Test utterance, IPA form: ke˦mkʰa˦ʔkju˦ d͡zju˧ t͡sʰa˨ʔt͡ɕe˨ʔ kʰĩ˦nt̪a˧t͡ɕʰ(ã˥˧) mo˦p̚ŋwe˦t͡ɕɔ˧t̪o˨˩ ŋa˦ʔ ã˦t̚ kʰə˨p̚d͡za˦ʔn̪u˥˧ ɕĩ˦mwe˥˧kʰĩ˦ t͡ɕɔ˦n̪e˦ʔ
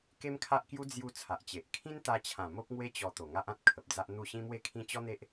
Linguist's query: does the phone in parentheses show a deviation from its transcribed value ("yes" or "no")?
yes